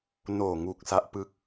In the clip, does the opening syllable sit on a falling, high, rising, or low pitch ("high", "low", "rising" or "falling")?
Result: low